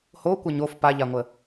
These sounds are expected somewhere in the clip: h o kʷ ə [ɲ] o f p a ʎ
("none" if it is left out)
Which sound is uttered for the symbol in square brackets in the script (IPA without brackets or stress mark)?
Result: ɲ